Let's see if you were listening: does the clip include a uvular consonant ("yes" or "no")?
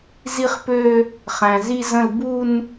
yes